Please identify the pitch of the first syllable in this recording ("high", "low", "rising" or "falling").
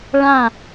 falling